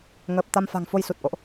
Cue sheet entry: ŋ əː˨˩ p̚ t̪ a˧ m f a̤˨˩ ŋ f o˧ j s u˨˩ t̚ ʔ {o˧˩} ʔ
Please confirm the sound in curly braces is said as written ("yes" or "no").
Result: no